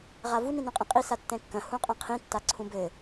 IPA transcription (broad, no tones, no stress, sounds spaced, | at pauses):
ʁ a v u n ĩ n õ qʼ ĩ qʼ i s a tː ɛ̃ kː ɐ̃ h ũ qʼ ɐ̃ qʰ ĩ tː a ǀʰ ũ b ɘ